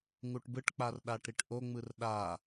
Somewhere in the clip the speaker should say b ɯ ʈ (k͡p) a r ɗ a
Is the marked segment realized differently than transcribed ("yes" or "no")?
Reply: no